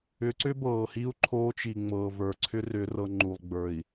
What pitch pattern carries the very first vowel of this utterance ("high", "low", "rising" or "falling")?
rising